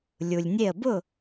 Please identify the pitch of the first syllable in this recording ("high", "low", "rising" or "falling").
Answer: low